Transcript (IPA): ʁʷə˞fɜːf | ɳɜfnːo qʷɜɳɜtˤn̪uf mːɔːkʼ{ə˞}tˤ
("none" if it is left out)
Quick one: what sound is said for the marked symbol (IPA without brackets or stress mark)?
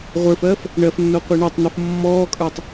ə˞